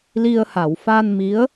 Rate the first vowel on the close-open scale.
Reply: close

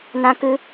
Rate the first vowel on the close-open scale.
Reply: open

